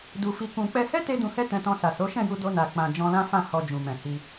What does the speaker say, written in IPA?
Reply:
d u˨ f i˨ k ũ˨ k͡p ɛ˧ h ɛ˦ t e˦ d ũ˧ h ɛ˦ t ɛ̃˧ t ɔ̃˧ s a˨ s o˨˦ ʃ ɛ̃˦˨ j u˧ d o˦ n a˧ k͡p ã˨ d͡ʒ ɔ̃˧ l ã˦ f ã˦˨ h ɔ˧ d͡ʒ ũ˨ m ɛ̃˨ h i˧

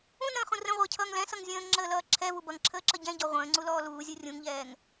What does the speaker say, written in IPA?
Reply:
ũ n ə̃ː χ ũ r ə̃ ʁʷ ʌː cʰ ʌː ŋ l ɛ̃ s ʌ ŋ zʲ ə̃ː ŋ ŋ͡ǁ əː l ʌː ǁʰ ɛ v u b ʌ ŋ ǁʰ əː ǁ ʌ ɟ ɛ̃ ɟ ɔ ʁʷ ə̃ː ŋ͡ǀ u l ɔː l uː zʲ u rʲ ũ ŋ ʎ ɛː ŋ

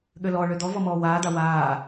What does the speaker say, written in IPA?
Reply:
ɠ ø l ɔ ɭ ø d̪ ɔ v ɔ m ɔː w aː d̪ a w aː

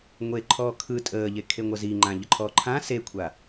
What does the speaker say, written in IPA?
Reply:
ŋʷ e ǃʰ ɔː kʰ ɯ tʼ əː ʎ e kʰ e ŋʷ ʌ z i ŋ͡ǃ ã ʎ ə ǃʰ ɔː ǃʰ ã s e kʷʰ a

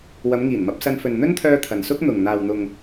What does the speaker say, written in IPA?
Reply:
w ɐ˨˧ m ŋ iː˨˩ n m ɐ˧ p̚ s ɐ˧ n f ɵ˨ n n̪ ɵ˥ n t̪ʰ œː˧ t̪ʰ ɐ˨ n s ʊ˥ k̚ n̪ ʊ˨ ŋ n̪ aː˨ w n̪ ʊ˨ ŋ

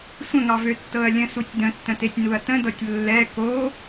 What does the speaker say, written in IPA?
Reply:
sʷ ə̃ ŋ ɑ v ø tː ɤ ɐ̯ lʲ ə̃ s u tʲ d ə̃ tː ə̃ t e tʲ n u ɐ̯ t ə̃ d ɤ tʲ lː ɛ k o

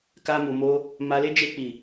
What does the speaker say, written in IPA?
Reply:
k a˧ m u˨ m o˧ | m a˧ l e˦ d͡ʒ e˦˨ k͡p i˨

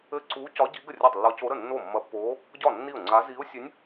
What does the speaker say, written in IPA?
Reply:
ɘ˥˩ ǀ uː˧˥ c ɒ˧˥ ɟ i˧˥ ɡ ə˥˩ rʲ ɒ˥˩ tˤ lː ɒ˧˥ c o˧˥ ɾ ə˥˩ nː o˥˩ mː ɐ˧˥ pː oː˧˥ | ɟ ɒ˥˩ nː i˥˩ ʊ̯ ŋ͡ǀ a˧˥ z i˧˥ ʊ̯ sʲ ɘ˧˥ nʲ

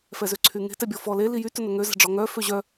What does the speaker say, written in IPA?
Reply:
f ɛ z ø ǀʰ y ŋ e̤ t ɛ bʲ ɔ f ɔ l e l i j y t ɵ n ɵ ŋ ø z ɛ̤ ɖ͡ʐ ɔ ŋ œ f ø ʑ œ

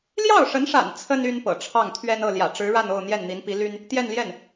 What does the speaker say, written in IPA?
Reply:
l j ɑ˥˩ ʊ̯ ʂ ə˧˥ n ʂ a̰˨˩ n t͡sʰ ə˥ n y˥ n p ɤ̰˨˩ ʈ͡ʂʰ ɑ˥˩ ŋ t̪ʰ ɥ ɛ˥ n ɤ˥˩ l j ä̰˨˩ ʈ͡ʂ ɻ̩˧˥ ɻ a˥˧ n o˥˧ ʊ̯ n̪ j ɛ˥˩ n n̪ i˧˥ n p i˧˥ l y˥ n | t̪ j ɛ˥˧ n l j ɛ˥˩ n

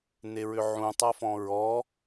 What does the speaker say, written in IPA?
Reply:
n e ɹ ʏ ʕ ũ tˤ a f ɔ̃ ɹ ɔ

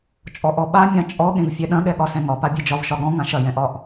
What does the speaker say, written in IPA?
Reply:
t͡ʃʼ ɔ ʔ ɔ ɓ a mʲ ã t͡ʃʼ ɔ ɠ ẽ v fʲ ɛ ɗ ɐ̃ ɠ ɛ ɠ ɒ s ɛ̃ ŋ ɒ p a bʲ e d͡ʒ ɒ v ʃ ɒ ɠ ɔ̃ ŋ ã ʃ ɐ j ɛ̃ ʔ ɒ ʔ

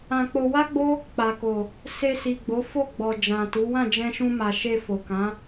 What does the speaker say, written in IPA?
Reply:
ã˧ k͡p o˧ w a˦ ɡ͡b o˦ | k͡p a˨ k o˨ | s e˧ s i˨ ɡ͡b o˨˦ f o˦˨ ɡ͡b ɔ˨ d͡ʒ ã˨ t u˨˦ w ã˦˨ d͡ʒ ɛ̃˧ ʃ ũ˧ m a˨ ʃ e˧ f o˨ k ã˨˦

